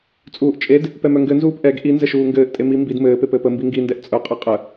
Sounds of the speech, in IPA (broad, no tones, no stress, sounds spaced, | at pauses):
t͡sʼ uː ʔ t͡ʃʼ e d | p ɛ m œ ŋ ɡ ɘ n z uː p ʔ ɛ ɡ ʔ i n z ɘ ʃ uː ŋ ɡ ɘː ʔ tʼ e m i m b i d m ɘː p e p ɘː p ə m b i ŋ ɡ i n d ɛ ʔ t͡sʼ œ qʼ e qʼ ə